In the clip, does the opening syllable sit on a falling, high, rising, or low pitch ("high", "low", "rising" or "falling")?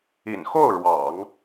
low